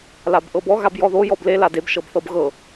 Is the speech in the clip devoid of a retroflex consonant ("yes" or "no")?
yes